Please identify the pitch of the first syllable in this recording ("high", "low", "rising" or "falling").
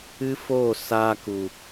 high